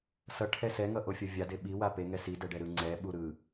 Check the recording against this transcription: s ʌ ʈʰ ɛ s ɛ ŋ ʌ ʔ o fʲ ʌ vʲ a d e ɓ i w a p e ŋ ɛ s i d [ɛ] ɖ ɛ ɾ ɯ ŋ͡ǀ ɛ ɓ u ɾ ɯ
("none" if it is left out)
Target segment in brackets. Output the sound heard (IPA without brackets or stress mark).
ɛ